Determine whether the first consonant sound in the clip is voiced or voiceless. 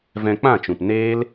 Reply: voiced